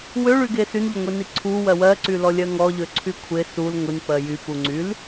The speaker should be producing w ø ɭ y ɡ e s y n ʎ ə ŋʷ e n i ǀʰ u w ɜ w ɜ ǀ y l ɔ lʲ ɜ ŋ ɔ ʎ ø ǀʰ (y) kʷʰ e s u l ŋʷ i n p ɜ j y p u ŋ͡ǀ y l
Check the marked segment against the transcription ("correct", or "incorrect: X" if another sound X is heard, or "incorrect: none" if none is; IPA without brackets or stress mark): correct